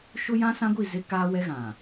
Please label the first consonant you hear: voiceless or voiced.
voiceless